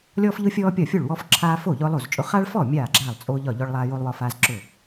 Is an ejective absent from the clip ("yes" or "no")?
no